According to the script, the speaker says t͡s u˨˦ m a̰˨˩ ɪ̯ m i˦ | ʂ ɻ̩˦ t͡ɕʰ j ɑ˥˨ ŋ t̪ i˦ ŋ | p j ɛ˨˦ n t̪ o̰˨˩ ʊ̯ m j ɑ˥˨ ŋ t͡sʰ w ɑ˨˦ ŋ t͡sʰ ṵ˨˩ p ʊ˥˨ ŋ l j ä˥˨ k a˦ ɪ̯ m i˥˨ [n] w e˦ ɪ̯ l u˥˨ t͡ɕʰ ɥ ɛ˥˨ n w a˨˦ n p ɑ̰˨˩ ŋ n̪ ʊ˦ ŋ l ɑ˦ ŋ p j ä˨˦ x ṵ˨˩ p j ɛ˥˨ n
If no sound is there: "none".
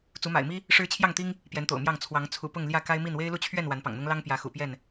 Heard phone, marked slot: n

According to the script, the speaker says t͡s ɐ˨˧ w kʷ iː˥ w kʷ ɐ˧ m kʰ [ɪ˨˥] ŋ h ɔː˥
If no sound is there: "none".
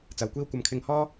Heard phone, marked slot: ɪ˧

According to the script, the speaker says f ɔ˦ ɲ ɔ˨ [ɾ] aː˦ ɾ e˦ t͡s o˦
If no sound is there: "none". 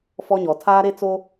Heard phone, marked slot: tʰ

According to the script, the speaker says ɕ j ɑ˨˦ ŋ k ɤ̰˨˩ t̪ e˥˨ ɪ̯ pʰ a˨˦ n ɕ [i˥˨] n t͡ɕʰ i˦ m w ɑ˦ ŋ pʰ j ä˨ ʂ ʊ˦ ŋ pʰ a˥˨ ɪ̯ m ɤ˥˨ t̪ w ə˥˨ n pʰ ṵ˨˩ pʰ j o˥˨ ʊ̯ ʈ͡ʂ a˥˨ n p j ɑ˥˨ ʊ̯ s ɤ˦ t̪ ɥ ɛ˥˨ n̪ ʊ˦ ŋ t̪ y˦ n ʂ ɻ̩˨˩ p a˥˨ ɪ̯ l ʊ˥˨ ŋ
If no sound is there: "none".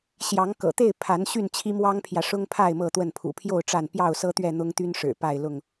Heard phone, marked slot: y˥˨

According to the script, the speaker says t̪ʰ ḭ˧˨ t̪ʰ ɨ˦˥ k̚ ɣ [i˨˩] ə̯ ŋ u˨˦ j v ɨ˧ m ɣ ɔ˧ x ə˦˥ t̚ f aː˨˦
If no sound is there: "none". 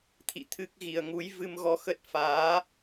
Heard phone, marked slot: i˨˩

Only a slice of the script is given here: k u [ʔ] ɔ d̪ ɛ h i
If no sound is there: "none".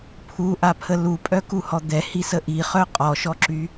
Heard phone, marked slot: h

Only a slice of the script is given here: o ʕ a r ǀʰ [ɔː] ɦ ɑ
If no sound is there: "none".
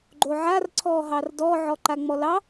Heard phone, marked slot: ɔː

